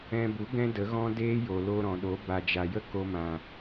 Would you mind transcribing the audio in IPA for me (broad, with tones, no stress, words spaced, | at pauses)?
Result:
ɛ̃˧bu˨˦ ɡɛ̃˦də˨˦ɣɔ̃˦ deː˦jo˨ lo˧ɾɔ̃˨ɗo˨˦ ba˨d͡ʒa˨ jə˦ko˧ mã˨